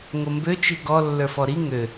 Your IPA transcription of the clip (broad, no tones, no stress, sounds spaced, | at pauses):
ŋ o m b ø t͡ʃ i ɡ ɔ lː ə˞ f ɔ ɾ i ŋ ø